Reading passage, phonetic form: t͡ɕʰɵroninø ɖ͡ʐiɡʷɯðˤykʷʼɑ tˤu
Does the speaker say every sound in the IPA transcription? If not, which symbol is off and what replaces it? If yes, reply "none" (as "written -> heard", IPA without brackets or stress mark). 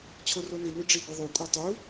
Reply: ɵ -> o